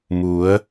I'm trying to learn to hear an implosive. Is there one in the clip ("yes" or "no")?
no